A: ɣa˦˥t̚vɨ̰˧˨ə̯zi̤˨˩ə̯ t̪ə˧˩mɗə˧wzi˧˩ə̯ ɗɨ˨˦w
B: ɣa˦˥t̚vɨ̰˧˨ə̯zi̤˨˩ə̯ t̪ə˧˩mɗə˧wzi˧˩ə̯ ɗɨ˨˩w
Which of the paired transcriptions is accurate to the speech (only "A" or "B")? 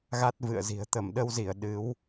A